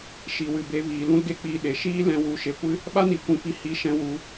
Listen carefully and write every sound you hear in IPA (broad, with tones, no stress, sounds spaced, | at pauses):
ʃ i˨ w ɨ˨ b e˧ v iː˨ l ũ˦ l ɡ e˦ k͡p iː˧ ɗ e˨ ʃ iː˦ l ɛ̃˧ w u˨˦ ʃ e˨ kʷ ɨ˦ | ɓ a˦ n i˨ kʷ ĩ˨ f i˧ h i˧ ʃ ɛ̃˧ w u˨˦